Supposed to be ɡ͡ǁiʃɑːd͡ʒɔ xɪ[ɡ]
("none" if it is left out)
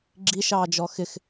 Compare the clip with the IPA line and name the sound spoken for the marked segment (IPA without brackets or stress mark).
x